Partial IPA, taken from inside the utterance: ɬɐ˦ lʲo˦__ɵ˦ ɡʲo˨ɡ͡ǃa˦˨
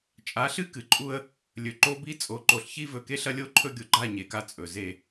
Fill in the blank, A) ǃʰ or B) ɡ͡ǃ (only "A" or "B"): A